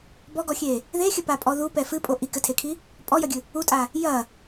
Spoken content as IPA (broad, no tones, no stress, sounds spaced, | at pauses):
b ɔ ɡ ɔ xʲ e | ð e xʲ ɘ p a pʼ ɔ ð u p ɛ f ɨ pʼ o ʔ i k ɘ tʰ e kʰ i | pʼ ɔ j ɐ ɡʲ ɨ | u tʼ a | j ɐ